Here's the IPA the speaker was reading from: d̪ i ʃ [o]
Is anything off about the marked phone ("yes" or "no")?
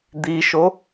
no